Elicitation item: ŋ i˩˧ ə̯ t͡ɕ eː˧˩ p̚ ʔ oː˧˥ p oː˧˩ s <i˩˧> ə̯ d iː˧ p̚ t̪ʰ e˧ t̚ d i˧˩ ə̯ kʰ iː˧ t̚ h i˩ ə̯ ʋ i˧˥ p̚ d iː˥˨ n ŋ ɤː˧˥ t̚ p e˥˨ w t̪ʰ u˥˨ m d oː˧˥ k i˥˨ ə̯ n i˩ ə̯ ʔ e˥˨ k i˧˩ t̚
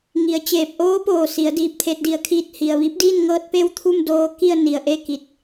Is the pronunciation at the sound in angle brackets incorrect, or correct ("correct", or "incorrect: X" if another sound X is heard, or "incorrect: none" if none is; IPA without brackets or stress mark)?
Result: correct